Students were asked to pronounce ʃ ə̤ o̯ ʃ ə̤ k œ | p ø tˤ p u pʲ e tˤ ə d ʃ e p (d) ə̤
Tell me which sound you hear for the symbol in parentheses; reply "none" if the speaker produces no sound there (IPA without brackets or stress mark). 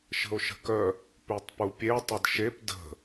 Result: d